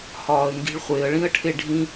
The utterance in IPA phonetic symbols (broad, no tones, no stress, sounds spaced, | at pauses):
h ɒː ə̯ ŋ ɡ i̤ ɭ χʷ e ə̯ ɭ ĩ ə̯ ʈʰ e ɖʱ ĩ